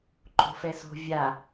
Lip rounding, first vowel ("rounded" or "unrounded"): rounded